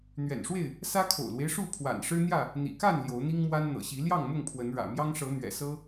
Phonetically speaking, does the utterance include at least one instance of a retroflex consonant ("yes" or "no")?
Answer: yes